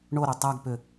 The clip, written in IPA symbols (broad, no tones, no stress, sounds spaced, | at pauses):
ɳ o ɾ o tˤ æ ɡ p ʏ